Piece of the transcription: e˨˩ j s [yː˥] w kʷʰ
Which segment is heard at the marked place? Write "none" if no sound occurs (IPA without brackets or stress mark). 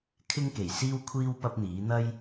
iː˥